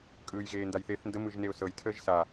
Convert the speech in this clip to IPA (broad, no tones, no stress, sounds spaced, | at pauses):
kʼ ɯː j ɣ eː n d a j θ e θ n d ə m ɯ ʒ n e ʊ̯ s ɤ j tʰ əː ʒ s a